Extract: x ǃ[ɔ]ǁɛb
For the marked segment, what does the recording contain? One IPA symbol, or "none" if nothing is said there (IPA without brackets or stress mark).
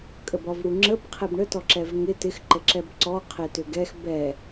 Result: ə